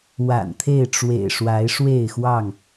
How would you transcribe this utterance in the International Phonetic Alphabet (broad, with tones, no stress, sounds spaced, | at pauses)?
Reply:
w a̰˨˩ n t̪ʰ e˥˨ ɪ̯ ʈ͡ʂ w ḛ˨˩ ɪ̯ ʂ w a˨˦ ɪ̯ ʂ w e˥˨ ɪ̯ x w ɑ˥˨ ŋ